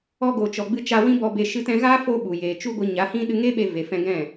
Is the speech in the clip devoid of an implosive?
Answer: no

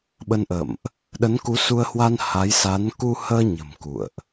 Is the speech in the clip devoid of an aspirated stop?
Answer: yes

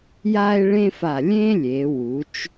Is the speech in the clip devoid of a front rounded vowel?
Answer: yes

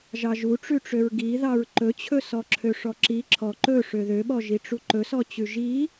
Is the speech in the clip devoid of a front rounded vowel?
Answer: no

